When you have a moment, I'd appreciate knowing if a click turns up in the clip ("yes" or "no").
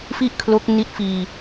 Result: no